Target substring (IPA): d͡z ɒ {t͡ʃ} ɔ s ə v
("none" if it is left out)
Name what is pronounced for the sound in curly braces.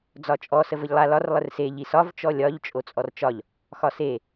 t͡ʃʼ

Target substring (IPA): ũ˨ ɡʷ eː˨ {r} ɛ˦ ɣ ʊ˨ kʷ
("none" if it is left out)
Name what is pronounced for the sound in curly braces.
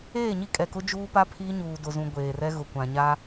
r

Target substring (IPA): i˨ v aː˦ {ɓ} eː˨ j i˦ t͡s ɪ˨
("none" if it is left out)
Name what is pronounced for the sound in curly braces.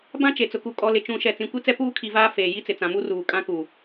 f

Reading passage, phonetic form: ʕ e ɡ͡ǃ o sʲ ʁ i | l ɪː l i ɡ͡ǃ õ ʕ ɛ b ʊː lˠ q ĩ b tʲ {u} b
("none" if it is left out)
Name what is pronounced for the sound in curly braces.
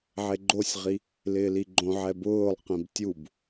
u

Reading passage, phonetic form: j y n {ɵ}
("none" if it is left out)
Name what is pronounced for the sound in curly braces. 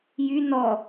ɔ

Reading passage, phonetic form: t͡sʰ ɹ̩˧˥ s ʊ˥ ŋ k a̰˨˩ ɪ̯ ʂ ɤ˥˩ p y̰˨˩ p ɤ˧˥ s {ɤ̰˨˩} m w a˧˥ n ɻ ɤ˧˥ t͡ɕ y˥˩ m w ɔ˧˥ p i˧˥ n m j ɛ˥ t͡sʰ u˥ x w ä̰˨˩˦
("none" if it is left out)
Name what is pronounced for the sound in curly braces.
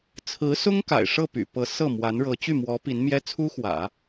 ɤ˥˩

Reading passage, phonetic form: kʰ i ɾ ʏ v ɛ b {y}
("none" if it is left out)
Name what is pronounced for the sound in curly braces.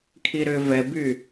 y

